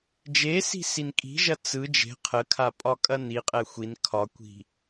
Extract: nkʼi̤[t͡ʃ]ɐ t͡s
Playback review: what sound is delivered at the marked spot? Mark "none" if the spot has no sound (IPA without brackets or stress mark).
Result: ʒ